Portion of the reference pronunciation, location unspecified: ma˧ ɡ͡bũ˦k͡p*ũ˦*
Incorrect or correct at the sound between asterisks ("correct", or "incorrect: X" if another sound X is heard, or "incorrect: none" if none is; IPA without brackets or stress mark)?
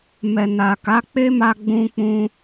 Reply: correct